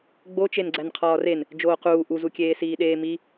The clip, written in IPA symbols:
ɡ͡b o t͡ʃ e n ɡ͡ǀ æ n qʰ ɒː r e n | d͡ʒ oː q uː ʔ u z u kʲ eː s iː ɗ eː m i

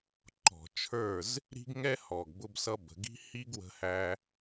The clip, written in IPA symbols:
ǃ ɔ̤˨ t͡ʃʰ ə˞˦˨ z | ɾ i̤˦ ɡ ŋ ɛ˦ h ɔ˨ ɡ b ʊ˧ b s ʌ˧ b ə̤˨ ɡ i̤˦ h i˦ ɡ w ə̤˧ h æ˧

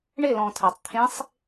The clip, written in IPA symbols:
ɳ ɪ l ɔ̃ tʰ a tˤ t̪ʰ ẽ sˤ

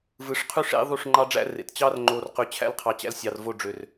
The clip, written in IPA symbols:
v ɯ˨ ʂ qʰ y˦ ʂ ḛ˦ ðˤ u˦˨ ʂ ŋ͡ǃ ɑ˦ ɖ͡ʐ æ̰˦ r ḛ˨ t t͡ɕ ɑ˦ r ŋ͡ǃ o˨ r q y˨ t͡ɕʰ æ̰˦ l qʰ ɑ˨ t͡ɕ æ̰˦ l sʲ ɑ˨ r v o˦˨ ɖ͡ʐ ø˨ r

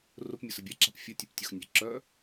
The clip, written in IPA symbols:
r ʊ p mʲ ʊ s ə bʲ a ǁ a̤ p fʲ ə tʲ ɵ p tʲ ʊ x nʲ a̤ ǁ œ

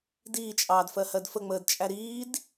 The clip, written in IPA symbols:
d iː t͡ʃʼ ɑː d f ɜ h ɜ d f ə ŋ͡m əː d t͡ʃʼ æ ɾ iː d

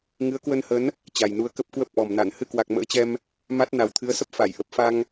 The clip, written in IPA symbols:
ŋ ɨ˨˦ ə̯ k w ə˧ n h ə˨˦ n | t͡ɕ a˨˩ j n u˨˦ ə̯ k ə˦˥ p̚ k w ə˦˥ p̚ ʔ ɔ˨˩ m n a˧˩ n h ɨ˧ k w a˨˩ k̚ m ə̰ː˧˥ t͡ɕ ɛ˧ m | m a˦˥ t̚ n a˨˩ w t̪ʰ ɨ˨˦ ə̯ s ə˦˥ p̚ f a˧˩ j ʔ ə˨˩ p̚ f a˧ ŋ

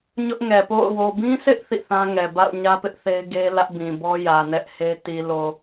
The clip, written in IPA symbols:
ɲ ʊ˦ ʔ ŋ ɛ˨ p o̰˦˨ ʊ̯ w o˨ b ĩ˦ sʰ ɪ˦ ʔ θ ḭ˦˨ θ ã˦ ŋ ɛ˨ b a̰˦˨ ʊ̯ ɲ ä˦ p ɪ˦ ʔ θ e˦ ɪ̯ ɡ e˦ l ä˦ ʔ b ĩ˨ b ɔ˦ j ä˨ n ɛ˦ ʔ h e˦ t i˨ l o˨

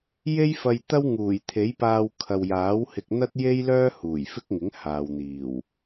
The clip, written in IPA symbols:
j e˥ j f ɐ˧ j t̪ ɐ˥ w ŋ uː˨˩ j t̪ʰ e˨˥ j p aː˧ w kʰ ɐ˨ w j aː˨˥ w h ɪ˧ k̚ n̪ ɐ˥ t̚ j e˥ j l œː˥ h uː˨˩ j f ɪ˥ k̚ ŋ ɪ˨˥ ŋ h aː˨ w n̪ iː˨˩ w

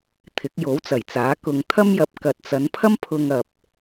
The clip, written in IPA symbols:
t̪ʰ ɪ˨˥ k̚ j o˨˥ w t͡s ɐ˨˩ j t͡s aː˨˥ k ʊ˧ ŋ t̪ʰ ɐ˥ m j ɐ˨˥ p̚ k ɐ˨ t̚ t͡s ɐ˨˧ n pʰ ɐ˥ m pʰ ʊ˧ ŋ ɐ˨ p̚

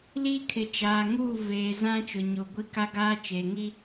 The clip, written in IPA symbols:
l iː˦ kʰ ɪ˨ t͡ʃ aː˨ ŋ uː˦˨ v eː˨ z ã˦ t͡ʃ ʊ˨ ɲ o˨ ɡʷ i˦ k a˦ ɡ aː˦ t͡ʃ eː˨ ŋ i˦

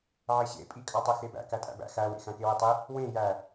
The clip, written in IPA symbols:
ʕ e ɕ ḛ pʼ i kʼ ɑ tˤ e x e b æ̰ k æ tʼ æ̰ b æ̰ x æ w ḛ x æ̃ k e w ɯ tˤ i | w ẽ j æ

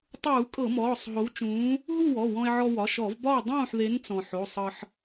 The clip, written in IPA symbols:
tˤ uː˧˩˧ kʼ ɤ˧˩˧ m ɔː˩˧˩ sˤ ɦ o˨˥ w t͡ʃ ũː˨˥ | ɦ u˥˨ w ɔ˩˧˩ w ɔ̃˧ e̯ ʕ ɔ˧ w ɒ˩˧˩ ʃ ɔ˧˩˧ v b ɒ˥˨ w dˤ ũː˥˨ ħ ð e˨˥ n t͡s ɔ̃˩ ħ o˩˧˩ sˤ ɤ˧ ħ

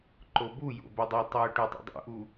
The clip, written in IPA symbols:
ǃ o b u j o̰ b ɘ dˤ u tˤ u ʈ u tˤ ṵ dˤ ṵ ʔ u

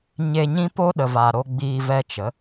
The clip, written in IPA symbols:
ɲ e˧ ɲ ĩ˦ p o˦ ɗ ə˨ v a˨ ɾ o˧ ɡ͡b iː˧ v ɛ˧ t͡ʃ ə˨˦

